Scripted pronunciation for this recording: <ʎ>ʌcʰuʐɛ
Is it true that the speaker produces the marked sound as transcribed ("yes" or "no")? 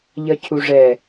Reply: yes